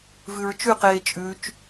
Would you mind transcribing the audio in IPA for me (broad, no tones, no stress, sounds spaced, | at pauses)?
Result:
v ʉ ɹ t͡ʃ ʉ q eː t͡ʃʼ ʉ t͡ʃ